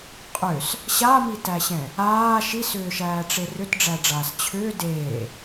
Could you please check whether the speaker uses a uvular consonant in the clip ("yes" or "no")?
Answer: yes